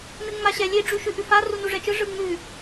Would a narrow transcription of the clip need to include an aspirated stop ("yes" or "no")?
no